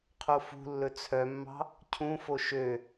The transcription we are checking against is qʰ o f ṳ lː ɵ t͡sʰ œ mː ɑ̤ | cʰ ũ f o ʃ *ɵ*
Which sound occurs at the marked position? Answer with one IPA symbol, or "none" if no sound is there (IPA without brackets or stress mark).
ø